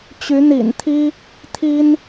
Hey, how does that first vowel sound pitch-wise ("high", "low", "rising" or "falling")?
rising